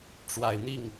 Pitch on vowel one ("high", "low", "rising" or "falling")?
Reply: low